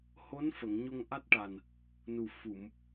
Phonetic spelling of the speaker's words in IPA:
ho˧˥nfə˨˩˨ŋ ɲo˧ŋʔa˦˥t̚ʈa˨˩n | nu˨˩ fu˨˩˨m

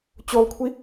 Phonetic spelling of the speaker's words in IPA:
t͡ɕolˠkʷʰi

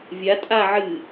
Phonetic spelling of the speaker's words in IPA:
vʲa tʼa ʕɨ

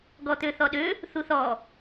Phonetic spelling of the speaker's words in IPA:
ɡɔt̪øθɔɗø | θuθɔ

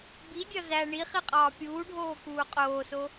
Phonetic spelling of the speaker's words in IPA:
bidʲɒ zæ ɳi χiqʼɒːpʲuːɖʱoː kuːqʼoːso

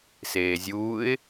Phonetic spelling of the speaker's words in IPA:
seːzʲuːɪ̯

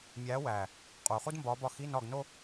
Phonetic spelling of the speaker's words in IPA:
mʲæː˨˦wæː˨˩ | qʼuː˨˩χu˥dmbɒː˨˦bɒ˦˨ xi˧˥˧nɒ˦˨ɡno˥

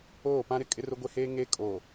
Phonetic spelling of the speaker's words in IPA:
oː˦˨pã˦ɾɪ˦ kʼɪ˦rʊ˦ɡʷe˦heː˦ ŋe˦kʼo˨

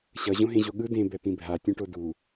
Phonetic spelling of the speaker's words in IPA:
ɕʌ ʑõɦẽʑoɠɯ dẽ bɛpĩbʱa tʲõʈodu

